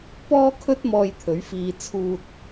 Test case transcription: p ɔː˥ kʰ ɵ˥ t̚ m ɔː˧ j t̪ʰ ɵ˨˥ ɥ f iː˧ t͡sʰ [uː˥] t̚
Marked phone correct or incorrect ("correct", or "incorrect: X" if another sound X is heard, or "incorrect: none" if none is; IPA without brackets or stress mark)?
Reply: incorrect: uː˧